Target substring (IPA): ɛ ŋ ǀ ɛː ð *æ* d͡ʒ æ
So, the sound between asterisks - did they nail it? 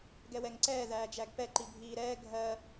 no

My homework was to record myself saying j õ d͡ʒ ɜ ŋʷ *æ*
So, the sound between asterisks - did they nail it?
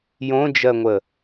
no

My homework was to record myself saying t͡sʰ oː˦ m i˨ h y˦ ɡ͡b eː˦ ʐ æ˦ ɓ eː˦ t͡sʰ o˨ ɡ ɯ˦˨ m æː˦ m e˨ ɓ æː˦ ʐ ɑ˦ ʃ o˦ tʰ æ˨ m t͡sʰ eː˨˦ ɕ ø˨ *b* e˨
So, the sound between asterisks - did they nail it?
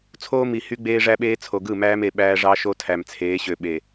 no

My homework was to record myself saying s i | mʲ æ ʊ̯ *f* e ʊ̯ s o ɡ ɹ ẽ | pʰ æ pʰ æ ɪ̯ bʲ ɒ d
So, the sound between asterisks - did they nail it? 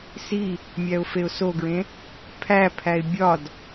yes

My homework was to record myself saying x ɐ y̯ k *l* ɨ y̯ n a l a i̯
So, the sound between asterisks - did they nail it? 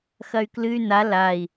yes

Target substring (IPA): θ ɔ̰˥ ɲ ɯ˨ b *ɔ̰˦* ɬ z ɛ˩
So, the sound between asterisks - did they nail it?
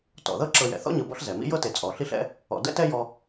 yes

